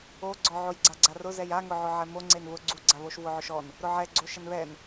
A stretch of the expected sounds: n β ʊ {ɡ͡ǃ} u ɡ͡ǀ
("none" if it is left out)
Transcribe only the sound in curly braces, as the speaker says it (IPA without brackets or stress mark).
ɡ͡ǀ